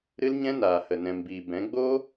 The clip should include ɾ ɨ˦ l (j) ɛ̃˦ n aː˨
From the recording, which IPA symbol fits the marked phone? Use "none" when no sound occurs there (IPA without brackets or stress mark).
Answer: ɲ